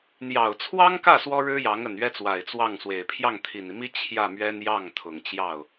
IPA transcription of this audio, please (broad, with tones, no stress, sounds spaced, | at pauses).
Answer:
n̪ j ɑ˨˩ ʊ̯ t͡sʰ w ɑ˥ ŋ k ä˥˩ s w ɔ˥ ɻ ɻ̩˥ j ɑ˧˥ ŋ ə˨˩ n ɥ ɛ˥ t͡s w a˨˩ ɪ̯ t͡s w ɑ˥˩ ŋ s w e˨˩ ɪ̯ pʰ j ɑ˥˩ ŋ t̪ʰ i˨˩ n i˦ m i˥ t͡ɕʰ j ä˥˩ m ɥ ɛ˥ n j ɑ˥˩ ŋ t̪ʰ ʊ˨˩ ŋ t͡ɕ j ɑ˥˩ ʊ̯